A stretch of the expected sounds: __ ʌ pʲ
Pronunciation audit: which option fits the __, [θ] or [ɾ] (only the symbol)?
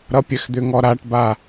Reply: ɾ